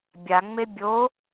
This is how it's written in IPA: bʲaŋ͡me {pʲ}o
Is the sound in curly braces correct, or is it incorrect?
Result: incorrect